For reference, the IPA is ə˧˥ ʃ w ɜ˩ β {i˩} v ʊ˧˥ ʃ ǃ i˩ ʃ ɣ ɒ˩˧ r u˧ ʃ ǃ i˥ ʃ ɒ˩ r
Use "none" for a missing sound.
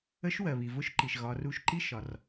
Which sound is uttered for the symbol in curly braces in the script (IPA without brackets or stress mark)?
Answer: i˩